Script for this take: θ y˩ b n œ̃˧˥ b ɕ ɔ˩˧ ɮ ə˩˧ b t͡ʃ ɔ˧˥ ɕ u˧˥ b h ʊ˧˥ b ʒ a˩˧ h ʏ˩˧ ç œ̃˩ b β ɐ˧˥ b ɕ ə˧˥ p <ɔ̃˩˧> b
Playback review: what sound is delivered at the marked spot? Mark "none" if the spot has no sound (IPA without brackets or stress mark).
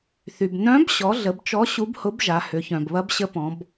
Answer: ɔ̃˩˧